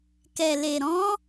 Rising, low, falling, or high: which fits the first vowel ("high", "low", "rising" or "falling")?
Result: low